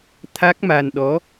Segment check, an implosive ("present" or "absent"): present